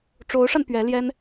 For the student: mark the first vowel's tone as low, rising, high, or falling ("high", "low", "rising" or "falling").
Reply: rising